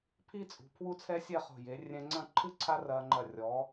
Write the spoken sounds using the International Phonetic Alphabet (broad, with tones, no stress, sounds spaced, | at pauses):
pʰ i˥ t͡sʼ ṳ˩˧ pʰ w u˥ t͡sʰ ɛ˥ sʲ ɛ˥˧ χ o̤˧˩ j e˩˧ rʲ ɛ̃˧ ŋ͡ǀ ɐ̃˥˧ ǃʰ ɨ˥ ǀʰ a˥ r ɐː˧ ŋ͡ǃ ɐ˧˩ rʲ ɔ˩˧